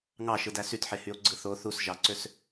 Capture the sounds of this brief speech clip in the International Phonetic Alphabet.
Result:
ŋ ɑ ʃ ɯ d æ s y t ħ e h y o̯ ɡ͡ǀ ɯ θ o θ u s ʒ ɑ ǀ ø s

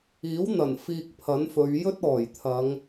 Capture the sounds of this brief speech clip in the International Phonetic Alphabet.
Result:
iː˨˥ w n̪ ɐ˨˩ n f iː˧ k̚ pʰ ɐ˨˥ n f ɵ˨˧ ɥ j ɵ˥ t̚ ɔː˨˩ j t̪ʰ ɐ˨˧ ŋ

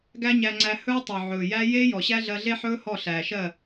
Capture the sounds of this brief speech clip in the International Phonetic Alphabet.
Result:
ɡ æ˦ ɲ æ˧ ŋ͡ǀ æ˧ h ɵː˦ tˤ o˨ ʕ ɵː˨ j æ˦ j eː˦ j ɔ˨ ɕ æ˦ ɮ ɜ˧ ɮ e˦ ħ ɵː˦ h ɔ˦˨ ɬ æː˨ ʃ ɜ˦˨

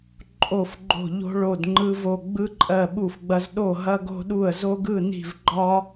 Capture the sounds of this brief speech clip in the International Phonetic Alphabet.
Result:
ǃʼ o˥˨ f ɡ͡ǃ o̤˥˨ ʎ o̤˥ ɭ o˥˨ d ŋ͡ǃ ɯ˥ v o˥˨ ɡ͡b ɯ˥ ǃʼ ɜ˥˨ ɓ u˥˨ f ɡ͡b ɐ˥ z ɗ o˥˨ ɦ ɐ˥ ɡ o̤˥ ɗ u˥˨ ə̯ z o˥ ɡ ɯ˥˨ n i̤˥˨ v ɡ͡ǃ ɒ˥

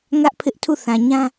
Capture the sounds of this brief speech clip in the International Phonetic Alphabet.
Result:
ŋ ä˦ ʔ pʰ ɪ˦ ʔ tʰ u˦˨ θ ã˨ ɲ ã˦

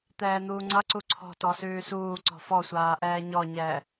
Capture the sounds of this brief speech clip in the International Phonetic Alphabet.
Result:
t̪ ɛː n̪ uː ŋ͡ǀ ʌ ǀ u ǀʰ ɔ̤ t ɔ s ʉː s uː ǀ ɔ̤ f ɔ sʷ aː ʔ ɛː ɲ ɔ ɲ ɛː

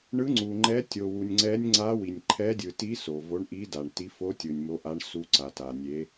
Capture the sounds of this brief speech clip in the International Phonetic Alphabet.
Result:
ɳ ɯ˧˥ ŋ͡ǀ u˨ ŋ͡ǃ ɛ˧˥ tʲ o˨ w u˨ nʲ ŋ͡ǀ ɛ˧˥ nʲ ŋ͡ǀ a˧˥ w i˨ nʲ ǃʰ ɛ˧˥ dʲ ɯ˨ t i˧˥ s o˨ v o˧˥ ɳ ʔ i˧˥ d a˨ ɳ t i˧˥ f o˧˥ tʲ ɯ˨ nʲ m o˧˥ ʔ a˧˥ ɳ s u˧˥ ǀ a˨ t a˨ nʲ e˧˥

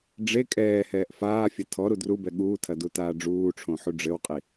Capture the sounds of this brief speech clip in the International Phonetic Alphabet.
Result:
ɖ͡ʐ e kʼ ɛː h ɛː ʔ f aː fʲ ɐ tʰ ɔ ɾ u d r u b ɛ ɠ uː tʰ ɐ d u t aː ɖ͡ʐ uː ʈ͡ʂʰ õ ħ u ɖ͡ʐ ɘ w qʼ i

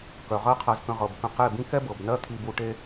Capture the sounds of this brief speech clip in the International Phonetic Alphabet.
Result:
k œ˨ ʁ ɜ˦ qʰ ɜ˧ z k ə̃˧ ʁ ɤ˨ b k ə̃˧ q e˦˨ b ĩ˦ k ɛ˦ b ɤ˨ b n ɜ˦ t̪ʰ i˧ b u˧ ʈ e˦

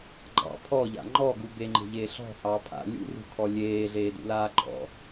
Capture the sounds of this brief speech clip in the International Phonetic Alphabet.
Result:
ɡ͡ǃ ɑ̰ pʰ ɔ ʎ a̰ ŋ͡ǃ ɔ ɡ u b e ŋ͡ǃ e̤ ʎ eː ɬ ɔ̤ h ɑː pʰ a̰ lʲ ṵ r ṳ kʰ ɔ lʲ eː ɮ eː d ṵ l aː ɡ͡ǃ ɔ̰

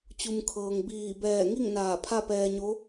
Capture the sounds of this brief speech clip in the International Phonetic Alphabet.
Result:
t͡ɕ u˩ m kʰ ɤː˩ ŋ b iː˧˩ b ɛː˧˩ ŋ i˥˨ ŋ n aː˧˩ pʰ a˥˨ p ɛː˧ ɲ o˧˥

